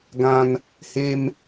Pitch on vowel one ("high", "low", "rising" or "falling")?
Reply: high